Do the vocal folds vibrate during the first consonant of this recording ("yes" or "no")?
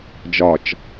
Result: yes